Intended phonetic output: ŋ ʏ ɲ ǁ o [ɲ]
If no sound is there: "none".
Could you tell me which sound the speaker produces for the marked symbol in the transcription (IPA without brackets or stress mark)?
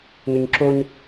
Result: ɲ